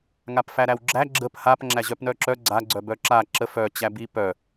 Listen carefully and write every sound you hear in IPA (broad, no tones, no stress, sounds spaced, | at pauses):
ŋ a p f æ ɾ æ w ɡ͡ǁ æ ɡ͡ǁ ə p h a p ŋ͡ǁ æ ʑ œ p n œ ǁ œ ɡ͡ǀ a ɡ͡ǀ œ b œ ǁ a ǁ ə f œ t͡ɕ æ b i p œ